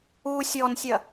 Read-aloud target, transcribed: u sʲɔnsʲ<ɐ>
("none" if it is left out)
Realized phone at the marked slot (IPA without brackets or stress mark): ɐ